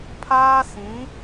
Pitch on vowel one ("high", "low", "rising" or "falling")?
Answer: high